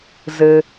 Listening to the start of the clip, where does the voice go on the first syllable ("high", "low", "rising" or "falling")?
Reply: low